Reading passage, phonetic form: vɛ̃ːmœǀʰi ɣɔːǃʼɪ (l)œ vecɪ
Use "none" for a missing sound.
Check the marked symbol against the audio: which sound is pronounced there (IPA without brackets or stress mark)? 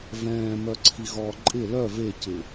l